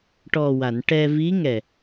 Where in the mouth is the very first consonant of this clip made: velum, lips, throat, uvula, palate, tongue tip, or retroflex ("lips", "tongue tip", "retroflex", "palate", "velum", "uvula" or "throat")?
retroflex